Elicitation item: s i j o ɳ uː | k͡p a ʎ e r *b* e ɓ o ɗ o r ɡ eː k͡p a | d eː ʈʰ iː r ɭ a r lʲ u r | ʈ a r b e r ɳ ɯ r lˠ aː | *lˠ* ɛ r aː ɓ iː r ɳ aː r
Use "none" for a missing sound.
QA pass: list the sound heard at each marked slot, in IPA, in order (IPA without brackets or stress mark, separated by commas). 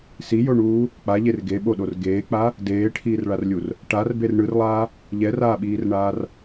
ɡ, ʎ